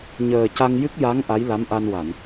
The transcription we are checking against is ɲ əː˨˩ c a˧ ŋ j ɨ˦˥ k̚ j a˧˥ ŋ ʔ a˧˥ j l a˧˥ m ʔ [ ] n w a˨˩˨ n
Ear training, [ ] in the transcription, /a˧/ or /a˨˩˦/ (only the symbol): a˧